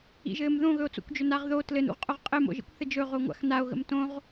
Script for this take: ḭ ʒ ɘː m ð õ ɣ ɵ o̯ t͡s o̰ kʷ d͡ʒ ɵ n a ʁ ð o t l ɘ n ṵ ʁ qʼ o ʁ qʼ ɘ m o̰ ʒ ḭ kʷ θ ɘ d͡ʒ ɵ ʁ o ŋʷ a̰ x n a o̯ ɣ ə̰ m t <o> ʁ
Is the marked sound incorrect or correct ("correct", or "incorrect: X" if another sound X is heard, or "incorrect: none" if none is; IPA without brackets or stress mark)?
incorrect: õ